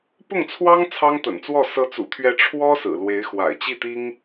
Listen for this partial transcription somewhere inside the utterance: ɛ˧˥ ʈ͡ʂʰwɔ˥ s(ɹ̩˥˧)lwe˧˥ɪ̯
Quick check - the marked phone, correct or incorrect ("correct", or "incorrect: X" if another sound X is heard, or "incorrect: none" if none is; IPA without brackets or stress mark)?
incorrect: ɹ̩˨˩